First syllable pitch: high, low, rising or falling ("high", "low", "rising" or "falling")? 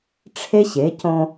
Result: high